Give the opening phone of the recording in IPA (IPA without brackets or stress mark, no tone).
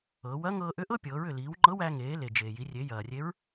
ɤː